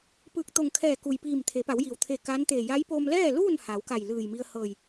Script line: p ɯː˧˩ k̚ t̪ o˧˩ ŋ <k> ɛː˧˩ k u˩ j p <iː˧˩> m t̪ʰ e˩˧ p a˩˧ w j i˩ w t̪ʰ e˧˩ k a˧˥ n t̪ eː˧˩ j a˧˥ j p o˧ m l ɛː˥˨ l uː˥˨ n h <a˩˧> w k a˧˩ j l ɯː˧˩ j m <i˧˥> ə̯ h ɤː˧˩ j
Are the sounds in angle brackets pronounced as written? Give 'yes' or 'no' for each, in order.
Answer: no, yes, yes, no

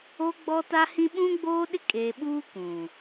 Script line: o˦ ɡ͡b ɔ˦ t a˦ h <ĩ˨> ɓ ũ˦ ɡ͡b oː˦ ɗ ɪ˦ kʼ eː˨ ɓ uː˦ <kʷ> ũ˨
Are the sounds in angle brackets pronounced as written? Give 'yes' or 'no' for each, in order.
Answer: no, yes

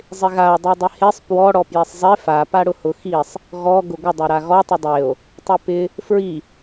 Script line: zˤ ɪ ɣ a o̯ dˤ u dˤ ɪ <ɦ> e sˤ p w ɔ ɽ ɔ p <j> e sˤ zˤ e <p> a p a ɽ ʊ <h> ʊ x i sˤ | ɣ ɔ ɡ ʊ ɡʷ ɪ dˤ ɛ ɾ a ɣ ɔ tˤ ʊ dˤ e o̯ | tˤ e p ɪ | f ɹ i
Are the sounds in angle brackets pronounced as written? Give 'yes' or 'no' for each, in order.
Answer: no, yes, no, yes

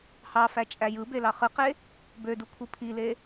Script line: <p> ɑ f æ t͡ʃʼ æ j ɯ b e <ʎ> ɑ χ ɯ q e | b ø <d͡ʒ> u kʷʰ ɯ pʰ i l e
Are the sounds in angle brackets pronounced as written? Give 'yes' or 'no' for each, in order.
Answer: no, no, no

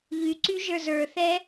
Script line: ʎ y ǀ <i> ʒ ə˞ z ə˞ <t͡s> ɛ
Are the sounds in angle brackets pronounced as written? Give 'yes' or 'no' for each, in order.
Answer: no, no

